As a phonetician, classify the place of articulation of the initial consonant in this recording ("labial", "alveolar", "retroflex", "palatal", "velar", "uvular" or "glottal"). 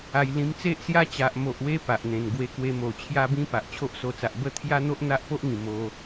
palatal